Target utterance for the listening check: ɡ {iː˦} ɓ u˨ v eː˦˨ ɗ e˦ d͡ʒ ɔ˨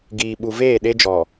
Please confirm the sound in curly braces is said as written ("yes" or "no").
no